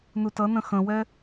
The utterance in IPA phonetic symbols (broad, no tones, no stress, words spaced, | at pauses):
nutʌnə̃ xə̃wɛ